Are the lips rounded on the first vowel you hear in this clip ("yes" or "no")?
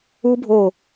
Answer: yes